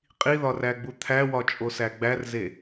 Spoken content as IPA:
qʼ i ð ɒ r æ ɡ͡b u t̪ʰ æ w ɒ t͡ʃʼ o s æ ɡ͡b æ r z e

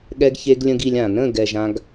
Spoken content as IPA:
ɠ ɛ˦ ɡ ç e˦ ɡ lʲ ə̃˦ ɡ i˧ lʲ ã˨ n ə̃˦˨ ɡ ɛ˨ ʒ ã˦ ɡ

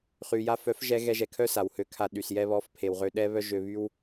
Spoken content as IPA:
χ y˨ j a˧ f œ˨˦ f ʒ ɛ˧ ɣ ɛ˧ ʒ ɛ˨ kʰ œ˦ s a˨ w h ø˧ kʰ a˧ ɗ y˨ s j ɛ˧ β ɔ˨˦ f pʰ e˨ w ʁ ø˧ ɗ ɛ˦ β œ˦ ʒ ø˧ β y˦ w

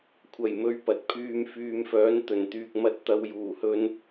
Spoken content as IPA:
kʷʰ ɐ˨˩ j m ɵ˨˥ ɥ p ɐ˨ t̚ pʰ yː˧ m f yː˨ m f œː˨˥ n t̪ ɵ˨˩ n t̪ yː˨ k̚ m ɐ˧ t̚ t̪ ɐ˨ w j uː˨˩ h ɵ˧ n

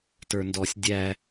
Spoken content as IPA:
t ə˞ n d ɔ sʲ dʲ æ

